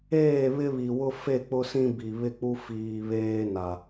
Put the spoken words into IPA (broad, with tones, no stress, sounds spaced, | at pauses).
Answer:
eː˦˨ β ɪ˦ β i˨ w ʊ˦ f e˦˨ k͡p ʊ˦ s ĩ˦ b i˨ β ɪ˦ k͡p u˦ f iː˨ β eː˦ n a˨